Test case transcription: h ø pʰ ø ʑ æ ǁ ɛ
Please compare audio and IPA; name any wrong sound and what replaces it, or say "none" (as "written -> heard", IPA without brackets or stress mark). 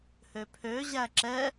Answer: none